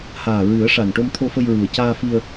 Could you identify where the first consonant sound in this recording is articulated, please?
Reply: glottal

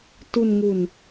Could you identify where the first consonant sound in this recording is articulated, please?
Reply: alveolar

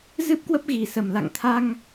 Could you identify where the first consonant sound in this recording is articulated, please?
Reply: alveolar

